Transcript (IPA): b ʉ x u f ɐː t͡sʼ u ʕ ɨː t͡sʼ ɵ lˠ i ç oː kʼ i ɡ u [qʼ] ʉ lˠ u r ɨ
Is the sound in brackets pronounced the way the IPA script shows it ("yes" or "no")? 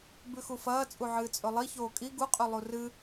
yes